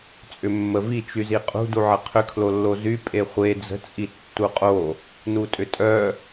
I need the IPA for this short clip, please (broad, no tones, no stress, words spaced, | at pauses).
t͡sʼʏmːəvi t͡ʃyziqʼṳ duʕəqʰʏ kʰlolːozy pʼeχʷe d͡zə̤ t͡sʼitːuqʼo | nutʼʏtʼœ